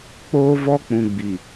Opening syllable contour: high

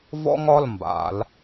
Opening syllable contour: high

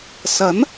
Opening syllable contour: rising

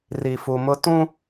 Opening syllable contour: low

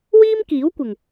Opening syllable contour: high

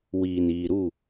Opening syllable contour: low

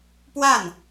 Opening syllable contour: falling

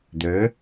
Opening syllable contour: rising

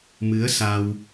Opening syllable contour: rising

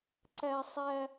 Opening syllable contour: high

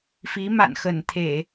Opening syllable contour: rising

